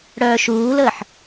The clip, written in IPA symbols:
ɽ œː ʃ uː l əː ħ

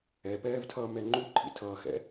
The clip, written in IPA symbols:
ɛ p ɛː v tʰ ʌ m ɛ ŋ͡ǃ u ǃʰ ḭ tʰ ʌː x ɛ̰

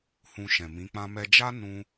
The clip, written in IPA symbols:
h ũ˨ ʃ ɛ̃˨ m ĩ˨˦ k͡p ã˦ m ɛ˦ d͡ʒ a˦ n ũ˧

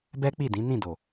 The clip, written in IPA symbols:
b ɛ˦ k͡p i˦˨ d ĩ˨˦ n ĩ˦˨ d o˨

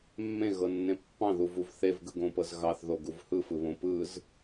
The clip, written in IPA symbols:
mː ẽ ɣ ɤ nː ẽ pː ɑ̃ ð u v u v θ e v ɡ ɯ ɡ õ p ɤ z ɣ ɑ θ ð o ɡ u v h ɯ f ɯ β õ p ɯ z

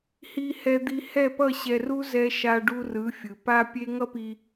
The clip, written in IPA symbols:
h i˧ h ɛ˧ d̪ i˧ h ɛ˥˩ p ʌ˥˩ ɕ ɛ˧ r u˥ z ɛ˥ ʃ a˧ ɖ u˧ r ɯ˩˥ fʲ ɯ˩ p a˥ pʲ e˥ ŋ ʌ˥ p i˧

